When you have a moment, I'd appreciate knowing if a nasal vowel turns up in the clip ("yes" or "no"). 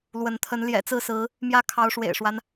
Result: no